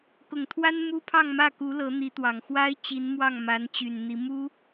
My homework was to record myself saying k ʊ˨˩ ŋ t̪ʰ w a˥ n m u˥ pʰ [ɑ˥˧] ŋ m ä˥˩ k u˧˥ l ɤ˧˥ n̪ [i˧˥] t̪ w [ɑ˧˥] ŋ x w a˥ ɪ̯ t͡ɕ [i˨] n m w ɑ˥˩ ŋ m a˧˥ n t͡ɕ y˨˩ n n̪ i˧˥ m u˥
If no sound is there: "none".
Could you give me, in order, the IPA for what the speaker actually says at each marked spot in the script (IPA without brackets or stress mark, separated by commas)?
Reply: ɑ˥˧, i˧˥, ɑ˨˩, i˧˥